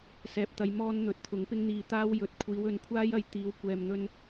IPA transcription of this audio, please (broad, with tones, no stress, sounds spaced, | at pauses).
s ɛː˨ p̚ t̪ ɐ˨˧ j m ɔː˧ n n̪ ɵ˨˥ t̚ t̪ʰ ʊ˨˥ ŋ p ɪ˥ ŋ n̪ iː˧ t̪ aː˥ w j ɵ˨˥ t̚ kʷʰ iː˨˧ w ɵ˨˥ n kʷʰ aː˥ j ɐ˨˧ j t̪ iː˨˧ w kʷ ɛː˨ m n̪ ɵ˧ n